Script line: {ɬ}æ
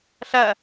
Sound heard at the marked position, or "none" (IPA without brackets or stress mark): ɬ